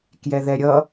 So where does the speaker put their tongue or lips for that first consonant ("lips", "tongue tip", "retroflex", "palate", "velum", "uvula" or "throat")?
velum